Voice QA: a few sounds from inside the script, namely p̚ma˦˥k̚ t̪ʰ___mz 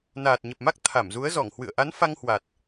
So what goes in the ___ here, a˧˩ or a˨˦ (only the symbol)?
a˧˩